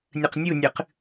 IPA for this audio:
nʲ ɨ q nʲ u nʲ ɨ q

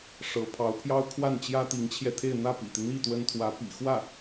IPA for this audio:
ʂ ɤ˧˥ pʰ ɑ˧˥ ʊ̯ pʰ j ɑ˥ ʊ̯ kʰ w a˥˩ n t͡ɕ j ä˥ t̪ i˧˥ ŋ t͡ɕʰ j ɛ˧ t̪ʰ e˥˧ ɪ̯ n̪ ä˥˩ p ḭ˨˩ t̪ i˦ n̪ i˥˩ t̪ w ə˥ n t̪ʰ w ä˧˥ p ḭ˨˩ x w ä˥˩

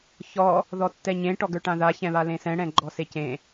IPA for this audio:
ç ɔ | ð ɔ tː ɛ ɲ ẽ ʈ ɔ ɡ ə˞ ʈ ã ð a ç ɛ̃ β a l ẽ s ɛ̃ ɽ ɛ̃ ɡ͡ǃ ɔ s e c ẽ

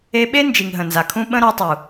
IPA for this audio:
e˧ ɓ e˦ n d͡ʒ i˨ ŋ ɦ ə̃˨ n z a˨ kʰ ũ˦ ɓ ə̃˦ ɾ ɔ˧ tˤ u˨

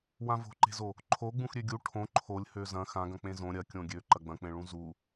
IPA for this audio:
w ã v o̤ ǃ e̤ z o | ǃʰ o ɡ͡b ũ x ɾʲ ø ɡʲ u ʈʰ õ ǃʰ o lʲ h ø z ɐ̃ x ã ɡ ɐ̃ k͡p ẽ z õ ɾʲ ɐ kʲ õ ɡʲ ø ǃ ɐ ɡ͡b ɐ̃ k͡p ẽ ɭ ũ z u

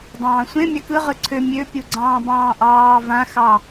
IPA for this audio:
dˤ ɑ̃ː sʷ ẽ mʲ ɑ k ɯ ʁ ɯ ǀʰ ø mʲ ø pʲ u ɡ͡ǀ ɑ̃ː b ɑ̃ː ʔ ɑː v ã x ɑ

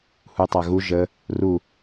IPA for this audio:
h u tˤ a ɣ u ʒ ə | r u

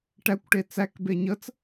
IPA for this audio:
ʈ æ kʷ ʈ e t͡s æ k b e ɲ ə t͡s

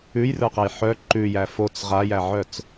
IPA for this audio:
ʉ j r ə˞ q æ j ħ œ ǃ ʉ j æ f o t͡s ʁ a j æ ʕ œ t͡s

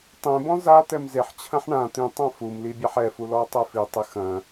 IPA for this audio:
tˤ ẽ b ɔ̃ z a t̪ ɛ m z e ħ t͡ɕʰ ɐ̃ ħ ɳ ã t̪ ĩ tˤ ã f u m l i bʲ a ħ ɛ f u l ɔ tˤ ɛ f i tˤ ɨ x ɐ̃

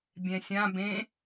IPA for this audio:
bʲ ɛ̃ sʲ ã b ẽ

